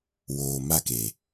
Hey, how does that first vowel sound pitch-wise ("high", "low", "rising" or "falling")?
low